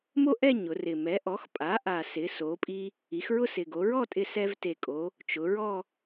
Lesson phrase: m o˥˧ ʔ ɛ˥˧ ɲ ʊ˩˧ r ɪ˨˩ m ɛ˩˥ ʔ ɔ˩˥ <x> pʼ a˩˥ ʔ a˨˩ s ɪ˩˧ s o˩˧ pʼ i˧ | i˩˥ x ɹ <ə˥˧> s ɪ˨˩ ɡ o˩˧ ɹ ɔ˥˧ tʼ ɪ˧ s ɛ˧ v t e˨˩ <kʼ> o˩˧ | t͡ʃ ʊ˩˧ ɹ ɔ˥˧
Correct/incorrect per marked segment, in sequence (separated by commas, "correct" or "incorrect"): correct, incorrect, correct